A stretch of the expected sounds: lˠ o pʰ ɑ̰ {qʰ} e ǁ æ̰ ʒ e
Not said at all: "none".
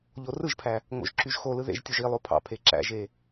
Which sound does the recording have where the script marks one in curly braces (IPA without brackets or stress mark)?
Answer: pʰ